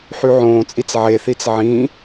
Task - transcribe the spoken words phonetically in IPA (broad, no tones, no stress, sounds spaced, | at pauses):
ħ y ʕ õː t͡sʼ i t͡s ʕ e θ i t͡s ʕ ĩ